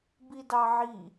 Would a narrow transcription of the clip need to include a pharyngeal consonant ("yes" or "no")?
yes